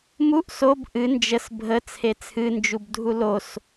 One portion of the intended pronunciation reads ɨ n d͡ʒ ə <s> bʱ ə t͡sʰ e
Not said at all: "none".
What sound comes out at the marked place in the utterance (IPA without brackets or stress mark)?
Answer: s